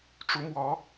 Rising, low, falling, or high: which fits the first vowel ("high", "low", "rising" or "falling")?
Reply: rising